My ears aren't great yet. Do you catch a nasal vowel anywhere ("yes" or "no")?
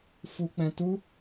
yes